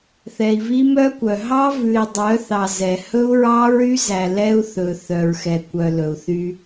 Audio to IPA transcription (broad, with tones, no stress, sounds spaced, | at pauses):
θ ɛ˨ i̯ v i˦ m œ˦ kʷ œ˨ ɦ ɑ˦ v ʉ˨ i̯ dˤ œ˨˦ θ ɑ˨ z ɛ˨ h ɵ˦ u̯ ɹ ɑ˦ ɹ y˦ z æ˨ l ɛ˦ u̯ θ ɵ˨ θ œ˨ ɹ x ɛ˨ kʷ œ˨ l ɵ˨ u̯ θ y˦